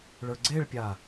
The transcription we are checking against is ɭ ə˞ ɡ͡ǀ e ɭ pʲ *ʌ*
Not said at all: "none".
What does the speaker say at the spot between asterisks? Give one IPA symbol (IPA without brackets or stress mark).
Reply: a